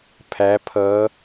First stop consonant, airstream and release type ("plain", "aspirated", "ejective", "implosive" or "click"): aspirated